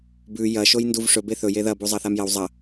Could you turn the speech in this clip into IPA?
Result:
b ʉ j ɐ ʃ o j n d u v ʂ ɵ b e θ ɵ j e ð ɐ b u zˤ ɐ θ a m j ɐ w zˤ ɐ

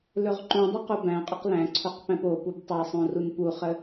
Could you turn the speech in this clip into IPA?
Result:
l ɵ ʁ ǃ ũ dˤ u q u b æ̃ qʼ ɵ q l æ̃ ǀʰ o q p æ̃ p o p u b tˤ a sˤ õ r u n p u χ ə

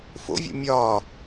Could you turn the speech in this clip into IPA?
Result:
f o̰ vʲ o̰ mʲ ɒː

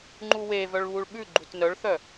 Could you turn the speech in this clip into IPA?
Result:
ŋ͡ǃ u w e v œ ɭ β u ɭ ɓ ʉ ɡ͡ǃ u t n œ ɭ θ œ

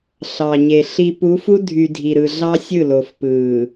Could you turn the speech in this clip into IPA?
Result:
ɬ ɑ˨ ɲ e˨ ɬ i˨ p u˨˦ f u˦ dʱ y˨ dʱ i˨ ɾ ɯ˨ ɮ ɑ˦ sʲ ɯ˦˨ l o˨ f p ɯː˨

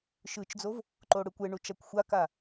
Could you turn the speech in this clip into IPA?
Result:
ʃ ɯ t͡ʃ d͡z o v | ǃ o ɽ ɯ kʷ e ɳ u t͡ʃ a kʷ xʷ a k a

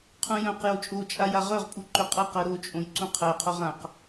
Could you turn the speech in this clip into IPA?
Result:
qʰ ũ j œ̃ q j o t͡ʃʼ o t͡ʃʼ a j a ʁ œ ʁ pʼ u ǃ ø qʼ a q ɜ ɾ o t͡ʃʼ õ j ǀ ũ qʰ ɜ qʰ o ʁ ã q

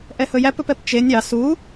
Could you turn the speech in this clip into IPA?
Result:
ʔ ɛ h ɵ j æ p ɵ p ɛ p t͡ʃ e nʲ ɑ s u

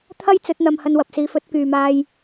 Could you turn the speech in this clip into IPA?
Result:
t̪ʰ ɐ˥ j t͡s ɵ˨˥ t̚ n̪ ɐ˧ m h ɐ˧ n w ɐ˨ p̚ s iː˨˧ f ɵ˨˥ t̚ k yː˨ m aː˧ j

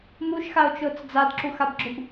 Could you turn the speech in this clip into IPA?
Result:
m u ʃ x a o̯ t͡ʃ ʊː t͡s d͡z a d ǁ u x a b ɡ͡ǁ ʊ b

